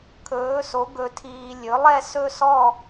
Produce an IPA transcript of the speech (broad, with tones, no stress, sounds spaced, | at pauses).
kʰ ɵː˨˥ s o˨˥ ɡ ɵ˧ tʰ iː˧ lʲ ɵ˨˥ lˠ ɛ˥˧ s ɵ˥˧ s ɔ˥˧